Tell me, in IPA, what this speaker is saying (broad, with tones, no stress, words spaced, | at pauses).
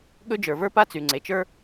ɠɵ˥d͡ʒə˞˩və˞˥ pa˥t͡sy˩ŋ͡ǀe˩t͡ʃə˞˥